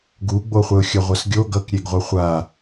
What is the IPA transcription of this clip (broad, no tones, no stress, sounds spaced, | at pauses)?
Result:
ɡ u ɡ͡b o χʷ ɛ ʊ̯ xʲ ʌ ʁʷ ʌ s ɡʲ o ɡ ʌ k ɾʲ e ɡ ʁʷ ɯ χʷ a